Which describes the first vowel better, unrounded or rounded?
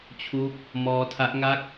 rounded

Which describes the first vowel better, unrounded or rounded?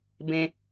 unrounded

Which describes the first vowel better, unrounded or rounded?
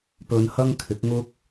rounded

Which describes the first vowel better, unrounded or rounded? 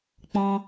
rounded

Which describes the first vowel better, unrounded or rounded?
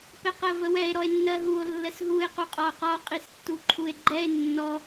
unrounded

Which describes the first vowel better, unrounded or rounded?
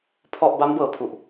rounded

